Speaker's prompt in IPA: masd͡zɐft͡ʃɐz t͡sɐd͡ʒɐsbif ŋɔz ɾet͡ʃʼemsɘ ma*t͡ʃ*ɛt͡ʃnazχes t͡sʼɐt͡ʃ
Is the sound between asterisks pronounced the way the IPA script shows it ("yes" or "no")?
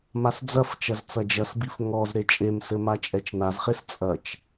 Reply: no